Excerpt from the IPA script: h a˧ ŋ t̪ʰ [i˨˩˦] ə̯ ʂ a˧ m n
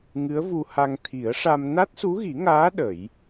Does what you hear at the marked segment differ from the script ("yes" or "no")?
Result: no